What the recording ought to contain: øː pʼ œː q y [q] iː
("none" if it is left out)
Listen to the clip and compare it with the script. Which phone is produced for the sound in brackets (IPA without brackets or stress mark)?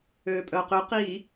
q